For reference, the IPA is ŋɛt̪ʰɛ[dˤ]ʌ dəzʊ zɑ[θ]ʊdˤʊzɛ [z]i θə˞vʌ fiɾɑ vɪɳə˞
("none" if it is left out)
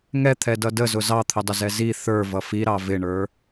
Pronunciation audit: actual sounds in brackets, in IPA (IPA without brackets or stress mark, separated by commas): d, t̪ʰ, z